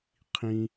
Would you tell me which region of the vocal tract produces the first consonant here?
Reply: uvula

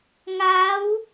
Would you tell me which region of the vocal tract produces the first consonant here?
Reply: velum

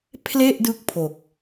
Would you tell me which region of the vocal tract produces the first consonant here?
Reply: lips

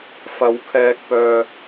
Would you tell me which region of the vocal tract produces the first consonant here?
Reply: lips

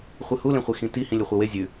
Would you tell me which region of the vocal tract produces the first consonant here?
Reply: uvula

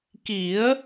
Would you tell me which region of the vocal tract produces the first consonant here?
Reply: velum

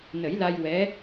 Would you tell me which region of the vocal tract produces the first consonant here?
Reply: tongue tip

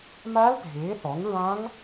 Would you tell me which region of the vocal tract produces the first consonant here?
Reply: lips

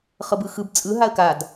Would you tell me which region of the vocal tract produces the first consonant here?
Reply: uvula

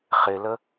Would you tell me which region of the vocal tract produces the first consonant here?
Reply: uvula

